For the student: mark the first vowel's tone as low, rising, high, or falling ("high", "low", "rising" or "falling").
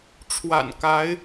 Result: low